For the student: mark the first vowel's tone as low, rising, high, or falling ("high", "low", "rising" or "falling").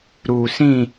low